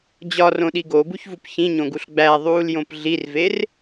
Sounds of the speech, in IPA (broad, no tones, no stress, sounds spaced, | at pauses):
d͡ʑ ɒ r õ ɗ i ɡ o b u ç v u p ç ĩ ɲ õ ɡ u ɬ ɡ͡b æ ðˤ uː l j õ p ɮ i r v e r